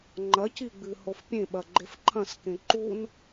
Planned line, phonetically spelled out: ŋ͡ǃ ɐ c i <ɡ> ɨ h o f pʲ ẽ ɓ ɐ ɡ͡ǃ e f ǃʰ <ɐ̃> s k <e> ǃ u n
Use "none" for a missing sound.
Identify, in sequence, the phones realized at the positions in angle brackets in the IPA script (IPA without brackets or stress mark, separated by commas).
ɡ͡b, ɐ̃, ẽ